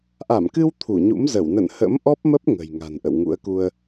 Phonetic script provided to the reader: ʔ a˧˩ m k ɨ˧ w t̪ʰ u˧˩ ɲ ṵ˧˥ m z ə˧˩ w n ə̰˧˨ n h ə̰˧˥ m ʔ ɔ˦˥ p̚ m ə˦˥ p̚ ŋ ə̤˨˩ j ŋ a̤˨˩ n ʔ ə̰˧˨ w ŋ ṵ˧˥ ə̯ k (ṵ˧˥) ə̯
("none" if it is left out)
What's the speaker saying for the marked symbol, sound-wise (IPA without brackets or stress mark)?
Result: u˧